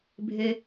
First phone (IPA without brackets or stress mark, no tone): bʱ